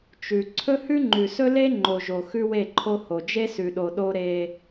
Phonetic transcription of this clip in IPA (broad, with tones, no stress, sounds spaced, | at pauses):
t͡ʃ ʉ˨ ǀʰ ɵ˦ h ʉ˦ ŋ͡ǃ ʉ˨ s ɵ˦ l e˦ ŋ͡ǃ o˨ ʒ o˨ x ʉ˦ w e˦˨ ǃʰ o˦ h o˨ d͡ʒ e˦ s ʉ˨ ɗ o˨ ɗ o˦ ɾ e˦